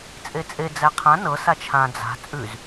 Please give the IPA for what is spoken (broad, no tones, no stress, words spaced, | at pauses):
t͡sʼet͡sʼe d͡zæqʰã nɤ sat͡ʃʰã d͡za̤ t͡sʼʉz